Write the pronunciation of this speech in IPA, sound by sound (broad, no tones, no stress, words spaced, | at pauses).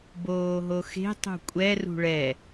boːɦoxe̤ tˤṳkʷʼɛ rṳɭɛ